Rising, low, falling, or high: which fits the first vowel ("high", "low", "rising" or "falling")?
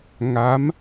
rising